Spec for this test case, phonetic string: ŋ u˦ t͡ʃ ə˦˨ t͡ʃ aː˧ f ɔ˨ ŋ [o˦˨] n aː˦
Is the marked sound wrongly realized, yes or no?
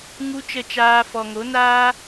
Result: yes